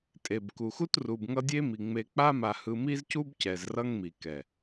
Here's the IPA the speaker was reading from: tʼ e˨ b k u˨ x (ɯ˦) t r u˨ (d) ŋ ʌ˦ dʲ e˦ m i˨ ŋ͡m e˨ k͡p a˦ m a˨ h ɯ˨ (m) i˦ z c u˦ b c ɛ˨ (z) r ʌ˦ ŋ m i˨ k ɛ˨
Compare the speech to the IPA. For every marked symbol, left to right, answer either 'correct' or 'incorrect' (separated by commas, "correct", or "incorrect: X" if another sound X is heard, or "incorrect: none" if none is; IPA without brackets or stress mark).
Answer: incorrect: u˦, incorrect: b, correct, correct